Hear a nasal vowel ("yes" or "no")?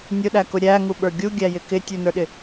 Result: no